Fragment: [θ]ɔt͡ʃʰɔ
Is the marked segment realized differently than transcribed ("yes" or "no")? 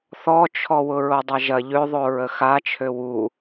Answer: no